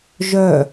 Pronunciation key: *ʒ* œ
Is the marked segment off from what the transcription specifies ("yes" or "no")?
no